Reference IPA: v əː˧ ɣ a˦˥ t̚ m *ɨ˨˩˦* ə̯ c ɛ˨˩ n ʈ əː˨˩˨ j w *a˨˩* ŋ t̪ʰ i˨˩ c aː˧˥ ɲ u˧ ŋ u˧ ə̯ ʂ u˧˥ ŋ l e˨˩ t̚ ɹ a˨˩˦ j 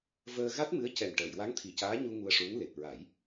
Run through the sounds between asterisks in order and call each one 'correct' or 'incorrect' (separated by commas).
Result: incorrect, incorrect